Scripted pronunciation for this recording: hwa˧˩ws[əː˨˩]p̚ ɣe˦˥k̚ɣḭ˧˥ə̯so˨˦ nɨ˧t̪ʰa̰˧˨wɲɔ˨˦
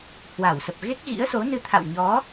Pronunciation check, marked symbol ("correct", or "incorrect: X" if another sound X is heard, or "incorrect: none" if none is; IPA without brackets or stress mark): incorrect: ə˨˩